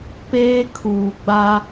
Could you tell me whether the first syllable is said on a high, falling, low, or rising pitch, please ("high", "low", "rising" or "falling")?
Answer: high